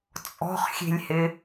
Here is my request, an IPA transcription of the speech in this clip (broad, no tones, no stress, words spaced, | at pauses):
t͡sʼɔ̤χxʲe̤lʲhɪ